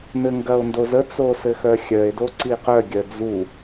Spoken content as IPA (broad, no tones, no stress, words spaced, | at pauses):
nɘŋɡɐo̯ndozə t͡sosɘxœxʲœe̯ doǀiqœ ɡʲœd͡zu